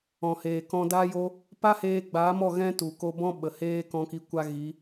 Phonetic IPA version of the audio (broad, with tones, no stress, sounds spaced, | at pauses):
ɔ̃˨ h eː˨ k ɔ̃˧ d aː˧ j o˧ | p a˦ h eː˧ ɡ͡b aː˨˦ m ɔ˦˨ ɣ ɛ̃˦ t u˨ k o˧ b ɔ̃˦ ɓ ə˨ h eː˦ k ɔ̃˧ k i˧ kʷ a˦ ɣ i˨˦